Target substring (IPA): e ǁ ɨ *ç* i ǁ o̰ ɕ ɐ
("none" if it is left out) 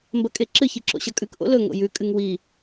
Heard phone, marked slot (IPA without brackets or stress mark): ç